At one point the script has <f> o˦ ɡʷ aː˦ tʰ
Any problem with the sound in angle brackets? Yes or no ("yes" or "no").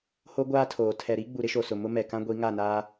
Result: yes